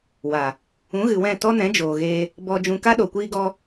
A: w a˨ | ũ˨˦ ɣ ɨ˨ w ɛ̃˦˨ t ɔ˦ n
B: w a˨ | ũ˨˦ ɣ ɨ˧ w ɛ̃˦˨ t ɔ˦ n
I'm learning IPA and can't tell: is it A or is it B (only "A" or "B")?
A